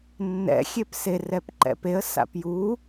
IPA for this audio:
nː ɛ̰ xʲ e p s e r ɛ p ǃ ɛ̰ p e ə̯ s a̰ p j u

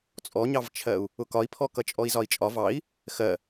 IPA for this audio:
t͡sʼ ɔ ɲ ɑ v t͡ʃʰ ɜ u̯ | ʊ k ɒ i̯ pʰ ɔ k ʌ t͡ʃʼ ɔ i̯ z ɒ i̯ t͡ʃʼ ɒ v ɑ i̯ | x ɜ

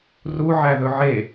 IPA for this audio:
r u ʕ æ ð ɵ ʕ e

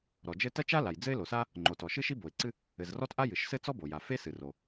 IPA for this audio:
ɾ ɔ˩ d͡ʒ ɘ˥ t ɐ˥ t͡ʃ a˥ l a˩ j d͡z ɘ˥ ɪ̯ l o˩ s a˥ | ŋ͡ǃ o˩ t ɔ˩ ʃ ɨ˥ ʃ i˥ b o˩ ɪ̯ ǀ ɨ˥ | ɘ˩ z r ɔ˥ t ʔ a˥ j ɨ˩ ʃ s ɘ˥ t͡s ɔ˥ b o˩ j a˩ f e˥ s ɨ˩ r o˩

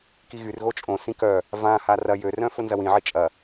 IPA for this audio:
k i ɣ y r ɣ o t͡ʃʼ õ s ĩ k œ | v ã h a r ɐ j ø r œ̃ f ʊ n z ɐ w ĩ ʕ i t͡ʃʼ ɐ

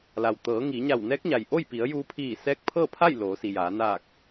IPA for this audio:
l a˩ w t̪ ɤː˩˧ ŋ iː˩˧ ɲ a˧˩ w n ɛː˧˥ k̚ ɲ a˩ j ʔ o˥˨ j p i˩˧ ə̯ j uː˧ pʰ iː˧˩ s ɛː˧˥ k̚ pʰ ɤː˥˨ pʰ a˥˨ j l oː˩˧ s i˩ j aː˩˧ n aː˧˩ k̚

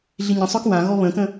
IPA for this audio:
ɮ i ɲ ə̃ sˤ œ k w ã ɣ ɔ β ə̃ k ə̃

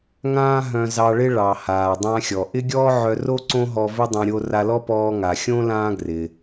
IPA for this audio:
ŋ ãː˥ ɦ œ̃˧ z ɑ˧ ɭ ɪ˥ ɭ ɑ˩ h aː˩ dˤ ã˧ xʲ ɔ˩ ʔ ɪ˥ ɡʲ ɔː˥ ʕ œ˧ r o˥ ǀ õ˥ ɦ ɔ˧ v ɪ˥ dˤ œ̃˧ ɾʲ o˧ r a˧ l ɔ˥ p ɔː˧ ŋ a˩ xʲ õ˥ l ãː˥ ɡ r ɪ˩

